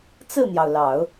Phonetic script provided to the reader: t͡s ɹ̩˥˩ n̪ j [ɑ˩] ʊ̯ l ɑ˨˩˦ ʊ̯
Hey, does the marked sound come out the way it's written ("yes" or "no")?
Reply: yes